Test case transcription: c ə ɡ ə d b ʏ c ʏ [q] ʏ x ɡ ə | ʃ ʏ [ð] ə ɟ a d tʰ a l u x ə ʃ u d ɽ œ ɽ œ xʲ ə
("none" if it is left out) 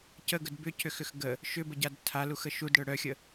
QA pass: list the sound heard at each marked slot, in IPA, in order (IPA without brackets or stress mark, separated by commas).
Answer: x, b